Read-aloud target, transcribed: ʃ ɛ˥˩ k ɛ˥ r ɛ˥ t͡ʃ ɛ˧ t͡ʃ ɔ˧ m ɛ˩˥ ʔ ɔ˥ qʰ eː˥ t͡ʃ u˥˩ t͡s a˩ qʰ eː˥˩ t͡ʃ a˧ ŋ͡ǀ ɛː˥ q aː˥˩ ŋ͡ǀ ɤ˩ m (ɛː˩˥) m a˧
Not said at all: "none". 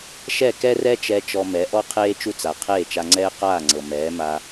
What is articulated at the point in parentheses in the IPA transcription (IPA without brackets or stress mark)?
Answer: ɛː˩˥